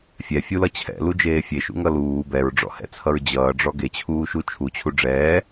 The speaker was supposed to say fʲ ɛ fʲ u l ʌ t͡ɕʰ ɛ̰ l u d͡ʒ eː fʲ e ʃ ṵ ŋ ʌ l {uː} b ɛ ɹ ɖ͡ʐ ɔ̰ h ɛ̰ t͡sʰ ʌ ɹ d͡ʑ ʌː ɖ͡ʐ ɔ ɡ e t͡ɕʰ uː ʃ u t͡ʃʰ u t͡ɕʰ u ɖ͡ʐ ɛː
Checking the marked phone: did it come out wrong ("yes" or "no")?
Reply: no